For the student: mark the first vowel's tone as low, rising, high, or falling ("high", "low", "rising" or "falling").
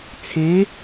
rising